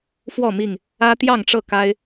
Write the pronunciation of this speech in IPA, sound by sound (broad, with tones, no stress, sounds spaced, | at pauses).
f w ɔ˥˨ m i˥˨ ŋ | ä˦ t̪ j ɑ˥˨ ŋ ʈ͡ʂ ɤ˥˨ k a˦ ɪ̯